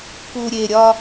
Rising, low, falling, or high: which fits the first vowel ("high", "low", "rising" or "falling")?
low